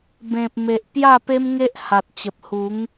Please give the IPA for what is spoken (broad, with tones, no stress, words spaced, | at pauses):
bẽ˨p̚me˨ʔ pja˥˧pe˦mŋe˦ʔ ha˨t̚t͡ɕə˨p̚ hu˨˦ŋ